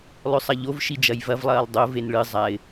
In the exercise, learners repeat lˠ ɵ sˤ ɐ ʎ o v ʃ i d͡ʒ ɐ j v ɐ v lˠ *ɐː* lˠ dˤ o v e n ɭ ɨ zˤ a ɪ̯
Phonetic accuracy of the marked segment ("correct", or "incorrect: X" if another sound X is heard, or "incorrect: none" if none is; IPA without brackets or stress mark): correct